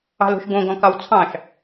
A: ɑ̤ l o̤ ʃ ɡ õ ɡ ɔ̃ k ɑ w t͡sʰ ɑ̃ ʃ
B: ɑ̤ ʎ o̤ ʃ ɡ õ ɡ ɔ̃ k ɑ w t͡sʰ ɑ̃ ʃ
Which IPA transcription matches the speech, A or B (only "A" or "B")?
A